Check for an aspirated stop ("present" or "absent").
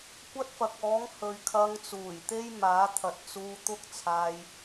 present